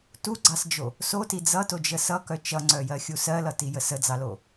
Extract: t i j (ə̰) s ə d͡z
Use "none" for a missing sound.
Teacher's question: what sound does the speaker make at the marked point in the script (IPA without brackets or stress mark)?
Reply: ə